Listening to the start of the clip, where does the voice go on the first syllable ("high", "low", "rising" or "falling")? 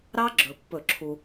high